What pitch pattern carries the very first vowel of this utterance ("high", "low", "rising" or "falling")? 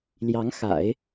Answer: rising